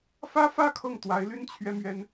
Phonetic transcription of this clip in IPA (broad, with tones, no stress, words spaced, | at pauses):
fä˥fä˥ kʰɤ˥˩ŋ t̪wa˧˥ɪ̯ly˥n t͡ɕʰɥɛ˥mɥɛ˥n